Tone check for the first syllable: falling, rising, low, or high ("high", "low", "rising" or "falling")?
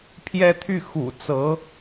high